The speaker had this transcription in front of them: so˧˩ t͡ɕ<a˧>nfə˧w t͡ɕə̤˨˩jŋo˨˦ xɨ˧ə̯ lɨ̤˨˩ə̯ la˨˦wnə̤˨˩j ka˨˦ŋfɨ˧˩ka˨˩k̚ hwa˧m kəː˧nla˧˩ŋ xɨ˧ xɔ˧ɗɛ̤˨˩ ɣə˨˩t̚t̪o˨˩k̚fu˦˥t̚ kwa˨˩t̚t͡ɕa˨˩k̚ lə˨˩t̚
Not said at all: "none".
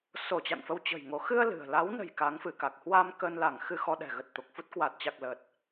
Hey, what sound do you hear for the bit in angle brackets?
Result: a̰˧˨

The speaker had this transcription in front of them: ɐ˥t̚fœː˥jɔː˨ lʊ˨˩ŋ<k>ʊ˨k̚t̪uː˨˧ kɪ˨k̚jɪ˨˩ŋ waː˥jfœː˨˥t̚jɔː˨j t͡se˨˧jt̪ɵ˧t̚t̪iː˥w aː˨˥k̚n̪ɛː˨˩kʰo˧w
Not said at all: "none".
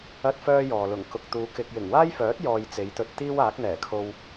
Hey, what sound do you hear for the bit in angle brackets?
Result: k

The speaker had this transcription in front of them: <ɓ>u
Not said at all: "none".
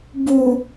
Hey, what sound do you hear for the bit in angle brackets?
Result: b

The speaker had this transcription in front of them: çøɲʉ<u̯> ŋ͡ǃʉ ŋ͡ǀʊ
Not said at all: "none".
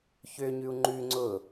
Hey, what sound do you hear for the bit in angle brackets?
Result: u̯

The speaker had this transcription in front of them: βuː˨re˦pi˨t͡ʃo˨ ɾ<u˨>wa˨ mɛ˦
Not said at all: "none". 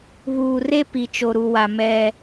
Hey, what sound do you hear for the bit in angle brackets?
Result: u˨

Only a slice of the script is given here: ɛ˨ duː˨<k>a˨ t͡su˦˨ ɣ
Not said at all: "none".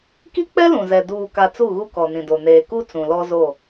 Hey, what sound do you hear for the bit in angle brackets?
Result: k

